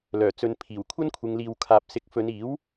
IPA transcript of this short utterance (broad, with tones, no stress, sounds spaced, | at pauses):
l œː˨˩ t͡s ɵ˨˧ n pʰ iː˨˩ w kʷʰ ɐ˥ n kʷʰ ɪ˨˧ ŋ l iː˨ w kʰ aː˨ p̚ s ɪ˨˥ k̚ f ɵ˨˧ n iː˨˥ w